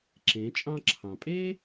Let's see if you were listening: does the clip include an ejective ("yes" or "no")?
yes